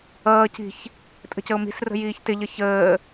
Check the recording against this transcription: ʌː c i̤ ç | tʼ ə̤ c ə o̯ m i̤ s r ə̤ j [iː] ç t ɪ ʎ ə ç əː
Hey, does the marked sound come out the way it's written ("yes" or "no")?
yes